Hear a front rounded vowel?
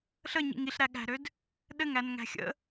yes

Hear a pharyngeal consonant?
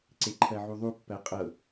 yes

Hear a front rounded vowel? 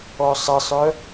yes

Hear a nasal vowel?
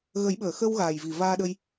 no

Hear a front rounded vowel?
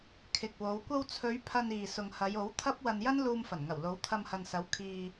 no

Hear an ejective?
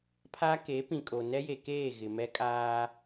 yes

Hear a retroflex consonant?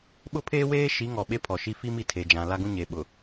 no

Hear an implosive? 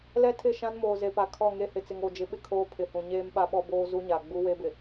yes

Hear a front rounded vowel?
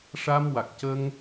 no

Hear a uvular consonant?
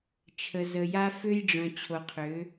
yes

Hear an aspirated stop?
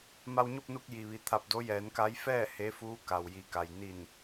yes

